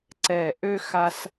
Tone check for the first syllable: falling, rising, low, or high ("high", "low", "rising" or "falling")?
low